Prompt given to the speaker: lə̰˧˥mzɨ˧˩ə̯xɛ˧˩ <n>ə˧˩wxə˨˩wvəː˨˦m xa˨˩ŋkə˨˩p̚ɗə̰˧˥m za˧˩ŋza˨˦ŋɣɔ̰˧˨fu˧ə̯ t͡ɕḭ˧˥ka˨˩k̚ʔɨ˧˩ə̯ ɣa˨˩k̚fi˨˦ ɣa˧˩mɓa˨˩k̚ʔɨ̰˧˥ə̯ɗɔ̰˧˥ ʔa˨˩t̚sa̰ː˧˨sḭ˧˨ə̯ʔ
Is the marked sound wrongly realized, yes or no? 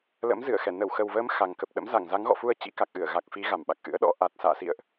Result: no